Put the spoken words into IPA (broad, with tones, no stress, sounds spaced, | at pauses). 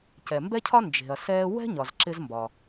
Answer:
c ɛ˩ m b ɛ˦ cʰ ɒ˦ n d͡ʒ e̤˩ ɐ̯ s ɛː˦ w ɛ̤˥ ɲ ɒ˩ z ǁ ɪ˦ z m b ɒ˩